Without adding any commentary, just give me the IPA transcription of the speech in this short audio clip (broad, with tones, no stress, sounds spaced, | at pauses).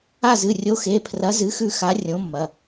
a˦˨ z ɨ˩˧˩ rʲ o˨˥ x e˩˧˩ pʰ r ɐ˨˥ z ɨ˨˥ x ʉ˦˨ x a˨˥ rʲ õ˨˥ mː ɐ˩˧˩